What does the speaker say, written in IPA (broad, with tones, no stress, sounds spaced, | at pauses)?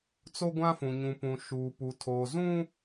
t͡s o˦ ɡʷ ã˦ f ũ˨ ɲ ũ˨ p ũ˨ ʃ uː˨ p u˨ tʰ oː˨ z ũ˦